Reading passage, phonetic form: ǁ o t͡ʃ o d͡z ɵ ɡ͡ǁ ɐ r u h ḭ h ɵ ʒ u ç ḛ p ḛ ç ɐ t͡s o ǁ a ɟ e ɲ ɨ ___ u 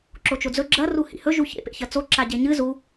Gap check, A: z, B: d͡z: A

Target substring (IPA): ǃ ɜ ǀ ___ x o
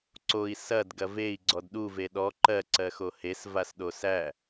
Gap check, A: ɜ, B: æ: A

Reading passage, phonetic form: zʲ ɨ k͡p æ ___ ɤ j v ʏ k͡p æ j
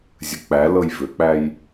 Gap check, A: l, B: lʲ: A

